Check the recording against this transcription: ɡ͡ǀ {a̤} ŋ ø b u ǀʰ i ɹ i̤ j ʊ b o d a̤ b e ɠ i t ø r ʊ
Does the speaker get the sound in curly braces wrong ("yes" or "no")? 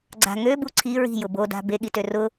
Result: no